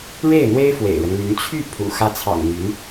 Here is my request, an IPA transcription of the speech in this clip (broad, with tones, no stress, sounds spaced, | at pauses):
ɻ e˥˩ ɪ̯ n̪ w e˥ ɪ̯ f w ḛ˨˩ ɪ̯ ɻ ə˦ n l y˧˥ n t͡ɕʰ y˥˩ pʰ ṵ˨˩ x ä˧˥ t͡sʰ ɑ̰˨˩ ŋ n̪ y˧˥ n